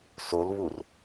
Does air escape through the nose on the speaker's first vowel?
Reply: no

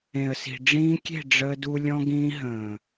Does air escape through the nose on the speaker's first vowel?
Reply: yes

